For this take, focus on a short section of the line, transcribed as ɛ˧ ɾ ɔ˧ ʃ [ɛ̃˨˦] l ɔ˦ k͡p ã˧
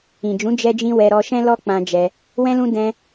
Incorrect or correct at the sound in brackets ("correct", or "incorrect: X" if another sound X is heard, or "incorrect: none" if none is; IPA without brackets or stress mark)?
incorrect: ɛ̃˦